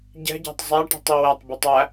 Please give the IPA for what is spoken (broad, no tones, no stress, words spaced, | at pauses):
ɟɛ̤ɟæ̤tˤ zˤæʈi̤tˤ iwætˤbʉtˤ æ